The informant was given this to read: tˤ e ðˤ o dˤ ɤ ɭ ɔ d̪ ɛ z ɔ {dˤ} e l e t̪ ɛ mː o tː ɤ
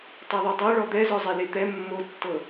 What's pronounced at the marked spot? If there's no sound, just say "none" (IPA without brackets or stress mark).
zˤ